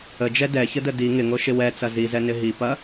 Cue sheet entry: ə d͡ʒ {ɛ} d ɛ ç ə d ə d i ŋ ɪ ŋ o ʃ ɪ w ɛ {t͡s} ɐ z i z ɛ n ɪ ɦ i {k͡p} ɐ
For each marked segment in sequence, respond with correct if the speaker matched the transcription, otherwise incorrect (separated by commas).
correct, correct, incorrect